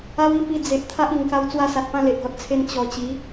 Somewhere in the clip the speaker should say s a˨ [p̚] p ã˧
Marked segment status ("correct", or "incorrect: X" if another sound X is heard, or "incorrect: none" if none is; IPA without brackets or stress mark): incorrect: t̚